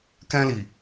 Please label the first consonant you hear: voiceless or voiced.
voiceless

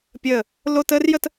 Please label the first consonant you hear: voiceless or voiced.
voiceless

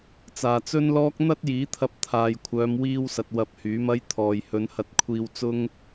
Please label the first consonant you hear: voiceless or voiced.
voiceless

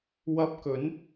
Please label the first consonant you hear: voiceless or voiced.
voiced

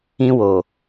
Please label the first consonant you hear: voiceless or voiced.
voiced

